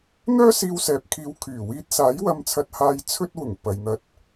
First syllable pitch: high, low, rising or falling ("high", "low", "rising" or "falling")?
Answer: high